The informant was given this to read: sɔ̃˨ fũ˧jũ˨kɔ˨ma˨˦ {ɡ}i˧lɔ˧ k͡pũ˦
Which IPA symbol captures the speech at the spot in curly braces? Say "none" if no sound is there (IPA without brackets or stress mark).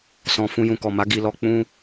ɡ